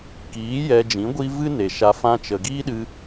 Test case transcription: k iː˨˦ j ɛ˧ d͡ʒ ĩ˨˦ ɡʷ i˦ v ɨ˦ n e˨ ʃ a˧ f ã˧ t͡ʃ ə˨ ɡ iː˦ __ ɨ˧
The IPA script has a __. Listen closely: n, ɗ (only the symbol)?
ɗ